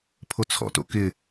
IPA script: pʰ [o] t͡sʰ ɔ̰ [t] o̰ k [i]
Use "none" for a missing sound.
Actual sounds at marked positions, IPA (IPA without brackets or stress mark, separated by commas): o, t, ɪ